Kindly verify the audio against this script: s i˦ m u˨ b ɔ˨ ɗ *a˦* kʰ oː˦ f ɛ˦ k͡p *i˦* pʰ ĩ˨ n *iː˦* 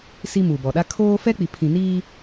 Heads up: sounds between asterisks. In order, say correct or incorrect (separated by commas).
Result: correct, incorrect, correct